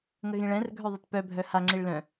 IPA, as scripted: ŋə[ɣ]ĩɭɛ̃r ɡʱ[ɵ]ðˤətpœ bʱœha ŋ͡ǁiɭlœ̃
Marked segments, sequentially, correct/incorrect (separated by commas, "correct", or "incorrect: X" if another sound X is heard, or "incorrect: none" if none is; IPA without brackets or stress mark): correct, incorrect: œ